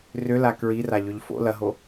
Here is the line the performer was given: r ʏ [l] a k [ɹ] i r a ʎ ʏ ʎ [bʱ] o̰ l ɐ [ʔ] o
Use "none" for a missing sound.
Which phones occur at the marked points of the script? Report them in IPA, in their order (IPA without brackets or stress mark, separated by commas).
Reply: l, ɹ, f, ɦ